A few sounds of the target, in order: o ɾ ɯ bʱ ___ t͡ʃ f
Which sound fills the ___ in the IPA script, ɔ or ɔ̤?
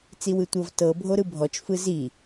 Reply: ɔ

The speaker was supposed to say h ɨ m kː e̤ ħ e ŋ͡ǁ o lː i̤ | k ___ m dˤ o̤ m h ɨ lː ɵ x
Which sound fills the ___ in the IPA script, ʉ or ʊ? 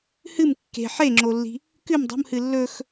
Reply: ʉ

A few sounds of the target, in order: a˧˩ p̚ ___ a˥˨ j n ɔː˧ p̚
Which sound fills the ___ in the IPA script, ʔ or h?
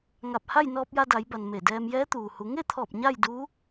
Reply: h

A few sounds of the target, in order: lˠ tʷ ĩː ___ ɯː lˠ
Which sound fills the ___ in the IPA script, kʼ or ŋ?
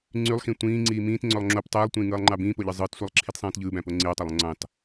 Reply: ŋ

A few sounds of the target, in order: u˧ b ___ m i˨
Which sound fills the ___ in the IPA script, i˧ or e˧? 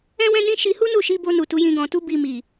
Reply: i˧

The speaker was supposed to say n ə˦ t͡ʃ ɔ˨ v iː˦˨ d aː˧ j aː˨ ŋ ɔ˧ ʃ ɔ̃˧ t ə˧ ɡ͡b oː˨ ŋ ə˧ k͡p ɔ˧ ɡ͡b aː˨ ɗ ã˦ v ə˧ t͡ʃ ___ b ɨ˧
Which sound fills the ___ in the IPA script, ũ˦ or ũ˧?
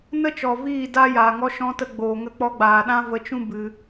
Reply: ũ˦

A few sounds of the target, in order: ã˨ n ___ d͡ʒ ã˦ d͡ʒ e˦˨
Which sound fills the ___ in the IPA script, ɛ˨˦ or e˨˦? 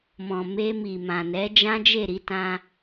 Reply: ɛ˨˦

